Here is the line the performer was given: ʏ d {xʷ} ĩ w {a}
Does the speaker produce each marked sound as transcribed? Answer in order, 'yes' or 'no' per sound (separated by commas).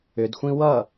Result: yes, no